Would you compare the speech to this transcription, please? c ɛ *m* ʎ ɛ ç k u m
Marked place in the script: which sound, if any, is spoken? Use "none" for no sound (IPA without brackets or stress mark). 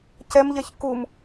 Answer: m